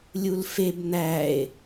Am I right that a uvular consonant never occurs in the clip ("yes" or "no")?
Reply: yes